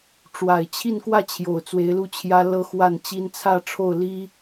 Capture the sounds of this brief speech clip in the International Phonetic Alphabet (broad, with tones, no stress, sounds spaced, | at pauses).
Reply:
ʈ͡ʂ w a˨˩ ɪ̯ t͡ɕʰ i˥˧ n k w ä˥˩ t͡ɕʰ j o˨˩ ʊ̯ t͡s w e˧˥ ɪ̯ l u˥˩ t͡ɕʰ j ä˥ l ɤ˥ x w a˥˩ n t͡ɕ i˥ n t͡sʰ ä˥˧ ʈ͡ʂʰ o˥˩ ʊ̯ l i˥